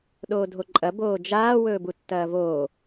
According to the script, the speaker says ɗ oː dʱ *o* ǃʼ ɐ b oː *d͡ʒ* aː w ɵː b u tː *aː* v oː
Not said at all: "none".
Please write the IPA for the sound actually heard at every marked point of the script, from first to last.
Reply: o, d͡ʒ, ɐː

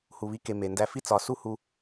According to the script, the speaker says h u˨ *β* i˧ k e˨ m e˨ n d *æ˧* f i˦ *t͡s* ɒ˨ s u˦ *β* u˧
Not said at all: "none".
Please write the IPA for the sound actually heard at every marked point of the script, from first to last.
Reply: β, æ˧, t͡s, h

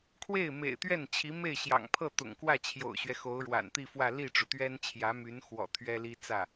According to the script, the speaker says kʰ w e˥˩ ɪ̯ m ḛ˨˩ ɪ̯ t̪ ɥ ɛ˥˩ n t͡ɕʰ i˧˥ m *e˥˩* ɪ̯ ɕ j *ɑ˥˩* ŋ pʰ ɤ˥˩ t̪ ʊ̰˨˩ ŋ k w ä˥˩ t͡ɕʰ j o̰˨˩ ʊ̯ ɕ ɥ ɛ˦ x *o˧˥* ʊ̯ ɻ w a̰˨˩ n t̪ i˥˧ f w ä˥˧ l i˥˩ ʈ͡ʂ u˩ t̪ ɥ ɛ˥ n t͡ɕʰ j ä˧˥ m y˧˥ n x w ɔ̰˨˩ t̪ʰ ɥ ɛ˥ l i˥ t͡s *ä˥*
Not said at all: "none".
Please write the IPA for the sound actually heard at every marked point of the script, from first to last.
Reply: e˥˩, ɑ̰˨˩, o˧˥, ä˥˩

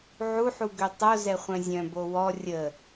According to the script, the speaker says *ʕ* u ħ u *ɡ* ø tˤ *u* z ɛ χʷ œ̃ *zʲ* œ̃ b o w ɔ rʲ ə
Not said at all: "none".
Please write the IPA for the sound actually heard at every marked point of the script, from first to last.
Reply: ʕ, ɡ, o, zʲ

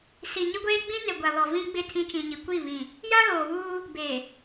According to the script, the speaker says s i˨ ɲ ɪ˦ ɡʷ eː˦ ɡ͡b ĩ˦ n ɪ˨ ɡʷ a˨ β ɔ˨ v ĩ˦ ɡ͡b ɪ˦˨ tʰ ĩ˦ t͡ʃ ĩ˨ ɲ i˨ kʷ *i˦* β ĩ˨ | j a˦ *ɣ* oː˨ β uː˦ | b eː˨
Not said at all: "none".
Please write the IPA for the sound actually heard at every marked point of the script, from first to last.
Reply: i˦˨, ɣ

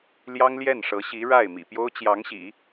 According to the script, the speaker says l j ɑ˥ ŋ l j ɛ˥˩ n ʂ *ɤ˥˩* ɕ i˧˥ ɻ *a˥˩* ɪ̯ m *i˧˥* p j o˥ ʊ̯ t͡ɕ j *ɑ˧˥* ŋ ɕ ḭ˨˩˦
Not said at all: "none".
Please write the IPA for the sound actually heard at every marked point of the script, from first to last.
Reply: ɤ˧˥, a˥˩, ḭ˨˩, ɑ˧˥

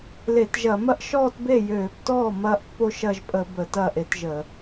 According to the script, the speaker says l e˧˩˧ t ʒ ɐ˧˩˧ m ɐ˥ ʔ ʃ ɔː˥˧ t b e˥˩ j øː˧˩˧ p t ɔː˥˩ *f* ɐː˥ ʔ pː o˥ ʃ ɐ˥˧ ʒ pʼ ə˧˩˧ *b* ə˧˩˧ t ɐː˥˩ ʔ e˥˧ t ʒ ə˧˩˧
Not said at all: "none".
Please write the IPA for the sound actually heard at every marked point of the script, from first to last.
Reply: m, b

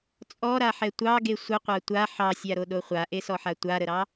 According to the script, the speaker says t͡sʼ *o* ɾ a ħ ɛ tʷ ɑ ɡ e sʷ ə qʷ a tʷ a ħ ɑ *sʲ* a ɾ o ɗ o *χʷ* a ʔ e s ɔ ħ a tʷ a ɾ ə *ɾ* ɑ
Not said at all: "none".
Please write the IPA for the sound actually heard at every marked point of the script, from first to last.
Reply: ɔ, sʲ, χʷ, ɾ

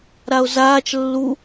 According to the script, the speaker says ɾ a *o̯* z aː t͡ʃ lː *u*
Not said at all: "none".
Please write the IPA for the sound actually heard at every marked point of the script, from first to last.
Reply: o̯, u

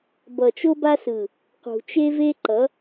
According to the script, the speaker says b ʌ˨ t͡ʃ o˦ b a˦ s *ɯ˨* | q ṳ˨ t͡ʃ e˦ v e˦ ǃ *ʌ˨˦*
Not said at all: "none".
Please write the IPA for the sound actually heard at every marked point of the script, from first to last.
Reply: ɯ˨, ʌ˨˦

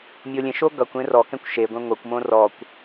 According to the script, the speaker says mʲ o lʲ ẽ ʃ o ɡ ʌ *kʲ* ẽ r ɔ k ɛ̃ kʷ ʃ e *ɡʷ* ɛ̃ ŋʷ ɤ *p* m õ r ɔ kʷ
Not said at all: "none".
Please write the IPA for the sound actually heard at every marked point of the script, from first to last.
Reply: kʷ, ɡʷ, kʷ

